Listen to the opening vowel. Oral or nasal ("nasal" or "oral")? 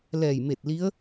oral